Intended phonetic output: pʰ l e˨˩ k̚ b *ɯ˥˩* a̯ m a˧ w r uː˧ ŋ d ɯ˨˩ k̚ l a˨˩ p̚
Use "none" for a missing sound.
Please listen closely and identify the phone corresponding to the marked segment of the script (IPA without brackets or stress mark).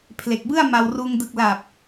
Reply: ɯ˥˩